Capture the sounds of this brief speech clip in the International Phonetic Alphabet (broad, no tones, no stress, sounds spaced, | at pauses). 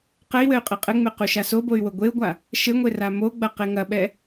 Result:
q ɘ i̯ w ɘ y̯ qʼ e qʼ ɘ ŋ͡m e q u ʃ a s o b o y̯ w o ɡʷ e u̯ ɡʷ a | ʃ ɘ ŋʷ e r a m o ɡ͡b ɐ q e ŋ ɐ ɓ ɛ